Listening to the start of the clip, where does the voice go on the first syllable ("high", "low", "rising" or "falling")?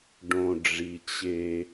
low